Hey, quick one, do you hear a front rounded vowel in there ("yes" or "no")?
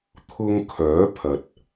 yes